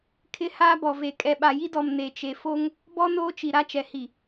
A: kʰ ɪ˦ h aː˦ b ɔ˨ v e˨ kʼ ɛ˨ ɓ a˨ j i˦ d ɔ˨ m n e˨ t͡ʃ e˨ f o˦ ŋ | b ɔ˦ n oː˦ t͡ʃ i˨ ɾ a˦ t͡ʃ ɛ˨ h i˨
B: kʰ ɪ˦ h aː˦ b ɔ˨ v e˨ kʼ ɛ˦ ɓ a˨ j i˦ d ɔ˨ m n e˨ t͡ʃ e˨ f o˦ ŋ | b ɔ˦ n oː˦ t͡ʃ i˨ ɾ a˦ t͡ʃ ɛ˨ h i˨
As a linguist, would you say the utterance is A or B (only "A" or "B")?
A